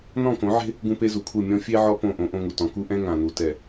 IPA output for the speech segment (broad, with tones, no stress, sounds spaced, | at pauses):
n ɔ̃˦˨ k õ˨˦ ʕ e̤˦ | ɡ ũ˦ p e˦ z u˨ kʰ u˦˨ mʲ ɔ̃˦ fʲ e˦ ʕ ɔ˦ p õ˦˨ ʔ õ˦ ʔ õ˦ ŋ u˨ t ɔ̃˨ k u˦ ʔ ɛ̃˦ ŋ ã˨ n u˨ t ɛ˨